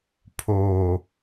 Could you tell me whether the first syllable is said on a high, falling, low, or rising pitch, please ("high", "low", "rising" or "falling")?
low